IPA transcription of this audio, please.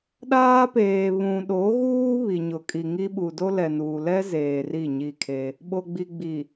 ɗaː˦peː˨βũ˨ ɗo˨˦ɣuː˦ βi˨ɲʊ˨kʼi˨ŋi˦ ɓu˨do˦lɛ˨nuː˨ lɛ˦ zeː˨ri˦˨ɲi˦˨kʰe˦ | ɓo˨ɡ͡bi˨ ɡ͡bi˨

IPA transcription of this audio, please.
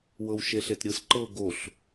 wɤwʃeɬetɾʲɯs ǃɤ ɡoɬ

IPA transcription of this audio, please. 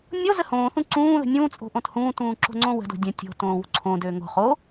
nʲo zəhõːθũ ǀũː ðə̤nʲũːt͡sʼo̤ ʔõthũːtũː ǁo̤ŋ͡ǀõwə̤do̤ dʲə̃ tʲo̤ tõːwṳǀʰõdøː ŋo̤ χo

